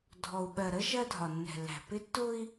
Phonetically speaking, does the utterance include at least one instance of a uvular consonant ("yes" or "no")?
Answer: no